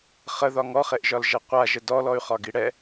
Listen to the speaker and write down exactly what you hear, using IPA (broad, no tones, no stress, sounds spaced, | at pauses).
χ ə ð ɒ ŋ ɔ χ e ʔ ʒ ɒ l ʒ ɛ qʷ a ʒ ə d ɔ l ɔ y̯ χ ɒ ɡ i ɽ ɛ